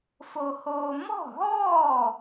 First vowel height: mid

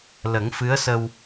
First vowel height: mid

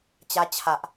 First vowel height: low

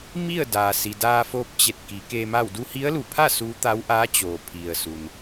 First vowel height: high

